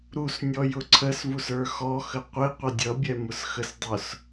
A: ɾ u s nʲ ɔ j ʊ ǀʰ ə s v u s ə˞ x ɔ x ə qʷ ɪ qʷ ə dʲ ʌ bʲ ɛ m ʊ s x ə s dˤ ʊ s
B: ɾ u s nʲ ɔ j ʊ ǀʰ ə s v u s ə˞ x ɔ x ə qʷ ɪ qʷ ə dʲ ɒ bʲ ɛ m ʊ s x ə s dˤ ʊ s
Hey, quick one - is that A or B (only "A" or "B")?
A